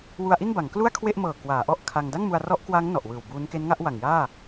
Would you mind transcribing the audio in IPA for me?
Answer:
wu˧a̯ʔi˥˩nba˩˦ŋ klu˥˩a̯kʰwe˥˩ʔmɤː˨˩ kwaː˩˦ʔɔ˥˩ʔkʰa˧ŋ da˥˩ŋmu˧a̯ rɔ˦˥ʔkwa˦˥ŋ nɔ˨˩ʔwɯː˨˩wbuː˦˥n ke˦˥nŋa˦˥ʔwa˨˩ŋ jaː˥˩

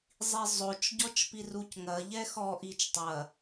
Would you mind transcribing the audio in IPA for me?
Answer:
zˤizˤot͡ʃɟɔt͡ʃ pirucŋɐʎɛ xɔʔit͡ʃ tˤɐ

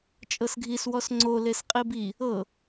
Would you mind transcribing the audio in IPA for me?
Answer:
t͡ʃʼɤsɡʱis wɔsŋ͡ǀo lesqʼibi | ɤ

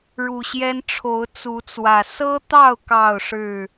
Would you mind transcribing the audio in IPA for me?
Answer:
ɻu˨˩ɕjɛ˦nʈ͡ʂʰo˨˦ʊ̯ t͡su˨˦t͡swä˨˩ sɤ˦t̪ɑ˥˨ʊ̯ kɑ˥˨ʊ̯ʂɻ̩˥˨

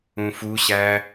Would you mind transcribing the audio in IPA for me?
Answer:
ũfuɕæ

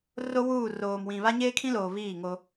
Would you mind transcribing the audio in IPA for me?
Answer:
ro˦ wuː˦˨ roː˨mwĩ˨ βa˦ɲeː˦kʰĩ˦loː˨ βiː˦˨ŋo˦

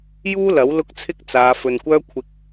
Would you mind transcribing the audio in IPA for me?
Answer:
juː˥lɐ˨˥w lʊ˥k̚t͡sʰɪ˥k̚ t͡saː˨˧ fɵ˨nkʷœː˥ kʷʰɪ˧k̚

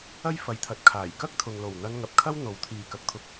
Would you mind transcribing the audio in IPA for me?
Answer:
ɐ˥jfɐ˨jt̪ʰɐ˨˥t̚kʰaː˨˩j kɐ˥k̚t̪ʰʊ˨ŋ lo˨˩wn̪ɐ˧nŋɐ˨p̚kʰɐ˥w n̪o˨˥wt̪ʰiː˨kɐ˨˥k̚t̪ʰʊ˧k̚

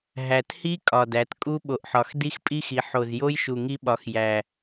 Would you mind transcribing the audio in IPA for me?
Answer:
ɦæ˨˩thi˦˥ kʼɒ˨˩dæ˩˧t kʼu˦˥ɓo˨˩ʔħɒ˩˧xdi˦˥x pʼi˦˥xi˩˧ ħo˨˩zjo˦˥jʃu˨˩ ŋi˦˥ɓɒ˩˧xjæ˨˩

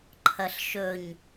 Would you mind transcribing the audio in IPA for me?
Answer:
ǃʰɐɬʃɵɲ

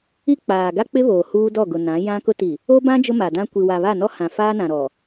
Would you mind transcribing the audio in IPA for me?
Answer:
i˦ k͡paː˨ ɡa˦k͡pɪ˦ βoː˨huː˦dɔ˦˨ ɡʊ˨nã˨˦ jã˦kʊ˦ ti˨ | o˦bã˦ d͡ʒʊ˦ma˨dã˦ kʷi˨wa˨βa˦˨nɔ˦ hã˨faː˦nã˨ ɾɔ˨

